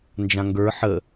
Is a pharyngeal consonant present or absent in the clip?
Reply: present